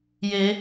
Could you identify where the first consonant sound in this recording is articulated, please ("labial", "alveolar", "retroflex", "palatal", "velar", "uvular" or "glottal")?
palatal